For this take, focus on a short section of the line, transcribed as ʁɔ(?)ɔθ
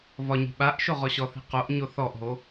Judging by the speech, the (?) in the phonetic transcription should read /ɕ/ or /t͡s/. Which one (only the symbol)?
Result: ɕ